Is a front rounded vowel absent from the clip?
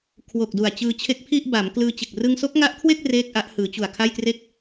yes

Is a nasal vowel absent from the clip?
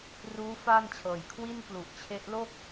yes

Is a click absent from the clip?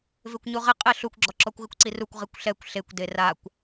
no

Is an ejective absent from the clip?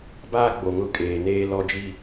no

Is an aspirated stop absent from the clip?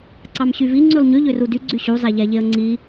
yes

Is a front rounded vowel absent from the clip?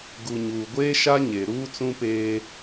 yes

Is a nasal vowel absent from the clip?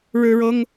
yes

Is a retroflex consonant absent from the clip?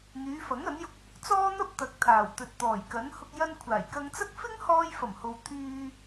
yes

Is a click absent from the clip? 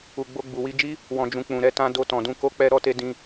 yes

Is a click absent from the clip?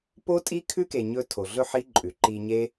no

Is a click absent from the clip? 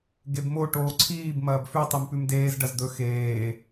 no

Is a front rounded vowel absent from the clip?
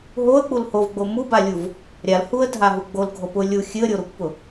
yes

